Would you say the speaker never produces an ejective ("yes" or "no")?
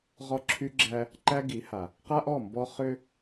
yes